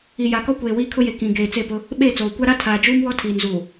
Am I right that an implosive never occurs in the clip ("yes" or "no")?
no